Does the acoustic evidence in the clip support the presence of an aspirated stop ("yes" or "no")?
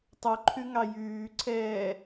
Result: yes